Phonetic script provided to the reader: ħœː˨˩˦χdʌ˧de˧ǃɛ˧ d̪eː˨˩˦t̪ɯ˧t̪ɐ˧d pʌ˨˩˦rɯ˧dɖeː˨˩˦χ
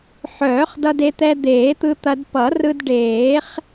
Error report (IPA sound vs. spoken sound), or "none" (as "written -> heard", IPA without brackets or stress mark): ǃ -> t̪